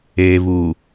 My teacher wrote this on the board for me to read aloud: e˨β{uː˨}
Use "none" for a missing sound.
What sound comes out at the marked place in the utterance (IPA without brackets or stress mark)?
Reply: u˨